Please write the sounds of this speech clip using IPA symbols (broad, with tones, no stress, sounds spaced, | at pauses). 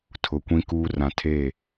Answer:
tʰ ʊ˨ kʷ ĩ˦ k uː˦ r ã˨ tʰ eː˦˨